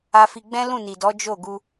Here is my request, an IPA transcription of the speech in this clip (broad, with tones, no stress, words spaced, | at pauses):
a˧fi˧ ɡ͡bɛ̃˦lũ˦˨ ni˨dɔ˨˦ d͡ʒo˦˨ɡu˧